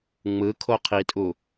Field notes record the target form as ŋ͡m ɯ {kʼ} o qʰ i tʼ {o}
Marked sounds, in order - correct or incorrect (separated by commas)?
incorrect, incorrect